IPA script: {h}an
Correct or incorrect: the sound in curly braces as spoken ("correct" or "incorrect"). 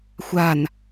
incorrect